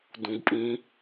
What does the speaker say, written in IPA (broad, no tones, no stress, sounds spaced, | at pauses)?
d ũ ɡ pʼ ĩ